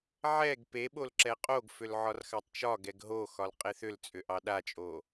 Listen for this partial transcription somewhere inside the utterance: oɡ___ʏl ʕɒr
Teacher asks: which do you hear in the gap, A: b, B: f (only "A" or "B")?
B